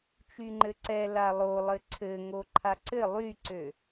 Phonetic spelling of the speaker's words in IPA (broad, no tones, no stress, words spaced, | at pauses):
t͡ʃyŋ͡ǃɘǀɛ lalˠolˠɘ ǀʰɘ ŋoǃʰaǀɘ lˠyǀø